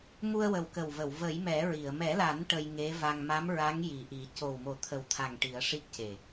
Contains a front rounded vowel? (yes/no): no